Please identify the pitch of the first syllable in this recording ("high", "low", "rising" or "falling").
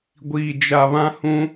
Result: low